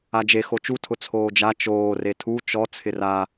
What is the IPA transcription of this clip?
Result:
a d͡ʒ e x o t͡ʃ u tʰ ʊ t͡sʰ oː d͡ʒ a t͡ʃ oː r e tʰ u t͡ʃ ɔ t͡sʰ ɪ r a

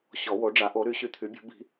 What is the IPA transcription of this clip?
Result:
ɕ ɔ˨˩˦ w o˩˥ ɖ͡ʐ a˩˥ ʔ o˩˥ ɾ y˨˩˦ ɕ y˨˩˦ t̪ʰ y˩˥ bʲ o̤˩˥ b i̤˨˩˦

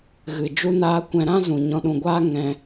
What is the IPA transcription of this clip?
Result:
ɣ ɨ˨ d͡ʒ u˦ n aː˦ kʷ ɛ̃˧ ɾ ã˦ z ũ˧ ɲ ɔ̃˧ ɗ ũ˧ ɡʷ aː˦ ŋ ɛ̃˦

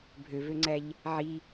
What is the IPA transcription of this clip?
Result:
bʱ ø v ø ŋ͡ǀ æ ʎ | ʕ i

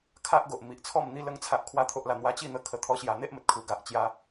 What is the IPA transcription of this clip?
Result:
kʰ a˦ ʔ ɡ o˨ ʔ m i˨ ʔ t͡sʰ ɔ˥˧ m n̪ i˧ l ə˦ ŋ t͡sʰ a˦ ʔ kʰ w a˦ t̪ʰ o˦ ʔ l a˧ n̪ w a˧ t͡ɕ i˥˧ n̪ ə˧ kʰ ə˧ t̪ʰ ɔ˦ ɕ j a˧ n̪ e˦ ʔ m ə˨ t̚ kʰ u˧ ɡ a˨ ʔ t͡ɕ j a˦

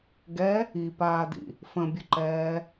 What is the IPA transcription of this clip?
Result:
ɡ ɛ | i p aː d ḭ | f ə̃ bʲ ə ǃ ɛː

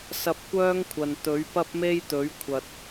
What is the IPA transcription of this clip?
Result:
s ɐ˧ p̚ kʷ œː˥ ŋ kʷʰ ɐ˨ n t̪ ɵ˨˥ ɥ p ɐ˥ p̚ m e˥ j t̪ ɵ˨˥ ɥ kʷʰ ɐ˨ t̚

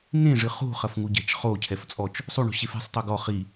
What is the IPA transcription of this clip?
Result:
ŋ ẽ ʐ ɨ χ ṳ χ ɐ f ŋ u ɟ ɛ̤ t͡ʃ χ o cʰ ɛ f t͡sʼ ɔ t͡ʃ | sˤ u ɳ o̤ ɕ e f e̤ sˤ tˤ o ɡ ɔ χ i

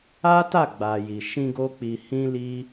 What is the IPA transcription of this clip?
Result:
a˦ t a˦˨ ɡ͡b a˨ j i˨ ʃ ĩ˧ ɡ o˦ k͡p i˧ h ĩ˦ l i˦

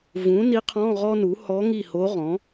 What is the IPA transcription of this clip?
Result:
v ũ˩˥ n i˧˥ qʰ ɔ̃˧˥˧ ʁ ɔ˥ n u˩˥ h ɔ˧˥ ŋ i˦˨ h o˧˥ ʁ ɔ̃˩˥

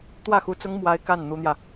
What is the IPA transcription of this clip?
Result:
t̪ w ä˥˩ x u˧˥ t͡s ʊ˥ ŋ m w a˥ ɪ̯ k a˥˩ n n̪ u˥ n̪ j ä˨

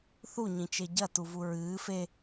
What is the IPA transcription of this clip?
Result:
θ u ɲ ĩ t͡ʃ e ɟ ɐ t u v u ɹ ɨː f e

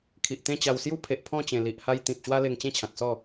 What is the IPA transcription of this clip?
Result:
kʰ i˨ ʔ t̪ ẽ˥˧ t͡ɕ a˧ w s j u˦ pʰ e˨ ʔ pʰ ɔ̃˥˧ t͡ɕ ẽ˨˩ l i˨ ʔ h a˧ j t̪ ĩ˨ p̚ ɕ w a˦ l e˧ ŋ t͡ɕ ẽ˥˧ t͡ɕʰ ã˨ k̚ s ɔ˥˧

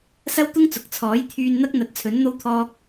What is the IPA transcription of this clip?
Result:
s ɐ˥ w t̪ ʊ˥ ŋ t͡s ʊ˨ k̚ t͡sʰ ɔː˨˥ j t̪ʰ yː˧ n n̪ ɐ˥ k̚ n̪ ɐ˨˥ t̚ t͡sʰ ɵ˨˥ n n̪ o˥ w t̪ʰ ɔː˥ k̚

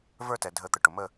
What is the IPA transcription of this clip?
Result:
v ə˞˥˧ t ɛ˩ dʱ ə˨˩˦ t̪ ə˩ ʈ ʊ˩ m ə˥˧

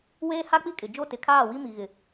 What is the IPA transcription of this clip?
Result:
w eː˦ h a˦ k͡p i˦ kʼ ɪ˨ d͡ʒ o˦˨ t ɪ˨˦ kʰ aː˦˨ w i˦ m i˨ ɣ ɪ˨

